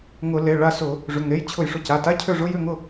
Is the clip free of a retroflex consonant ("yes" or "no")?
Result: no